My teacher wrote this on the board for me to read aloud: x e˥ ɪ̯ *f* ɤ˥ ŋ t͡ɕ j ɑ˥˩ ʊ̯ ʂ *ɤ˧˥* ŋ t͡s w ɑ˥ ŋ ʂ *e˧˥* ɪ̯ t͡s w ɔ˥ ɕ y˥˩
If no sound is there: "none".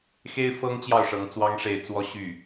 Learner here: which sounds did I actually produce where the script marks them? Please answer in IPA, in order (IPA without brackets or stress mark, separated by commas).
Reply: f, ɤ˧˥, e˥˩